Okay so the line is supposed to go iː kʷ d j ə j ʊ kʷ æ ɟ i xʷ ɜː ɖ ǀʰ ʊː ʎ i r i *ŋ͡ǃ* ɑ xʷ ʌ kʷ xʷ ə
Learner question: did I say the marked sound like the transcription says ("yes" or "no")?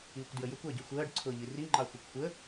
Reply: yes